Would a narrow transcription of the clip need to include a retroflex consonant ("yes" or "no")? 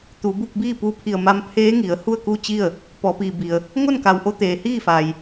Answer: no